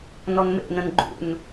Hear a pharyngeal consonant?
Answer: no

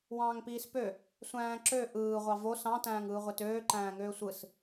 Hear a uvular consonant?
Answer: yes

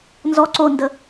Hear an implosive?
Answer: no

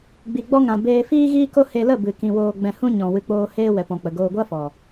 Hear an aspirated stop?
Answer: no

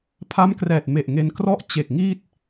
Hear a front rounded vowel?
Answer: no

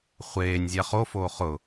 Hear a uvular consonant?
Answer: yes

